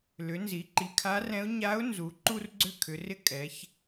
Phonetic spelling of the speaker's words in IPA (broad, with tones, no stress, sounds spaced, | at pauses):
l ʏ˩˧ n z i˩˧ ǃ i˩ kʰ a˧˥ r ɛ̃˧˥ ʊ̯ ɲ a˧˥ ʊ̯ n z u˩˧ ǃ u˥ r ɡ͡ǀ ʏ˥ kʰ ʏ˩˧ r ɪ˥ kʼ ɛ˩˧ ç